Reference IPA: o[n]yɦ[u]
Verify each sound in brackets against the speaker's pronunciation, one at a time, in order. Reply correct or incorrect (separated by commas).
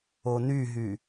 correct, incorrect